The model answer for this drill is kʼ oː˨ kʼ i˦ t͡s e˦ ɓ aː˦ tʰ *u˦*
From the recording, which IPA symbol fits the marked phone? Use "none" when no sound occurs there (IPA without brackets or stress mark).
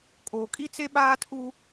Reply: u˦